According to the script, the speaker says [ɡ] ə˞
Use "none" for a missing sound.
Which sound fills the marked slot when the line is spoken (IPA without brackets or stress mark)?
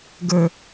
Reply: ɡ